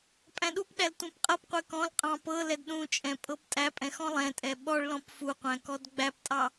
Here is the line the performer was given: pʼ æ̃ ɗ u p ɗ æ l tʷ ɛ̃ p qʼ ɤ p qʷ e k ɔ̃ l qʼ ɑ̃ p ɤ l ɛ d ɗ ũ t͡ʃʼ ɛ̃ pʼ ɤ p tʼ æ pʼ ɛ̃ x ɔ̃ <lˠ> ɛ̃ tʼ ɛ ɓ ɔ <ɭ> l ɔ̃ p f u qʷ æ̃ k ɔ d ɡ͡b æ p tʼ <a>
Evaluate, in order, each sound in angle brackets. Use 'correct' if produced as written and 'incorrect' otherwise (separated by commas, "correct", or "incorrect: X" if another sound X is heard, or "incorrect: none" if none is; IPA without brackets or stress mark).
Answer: correct, correct, incorrect: ɑ